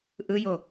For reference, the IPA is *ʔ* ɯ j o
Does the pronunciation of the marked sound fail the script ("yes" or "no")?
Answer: no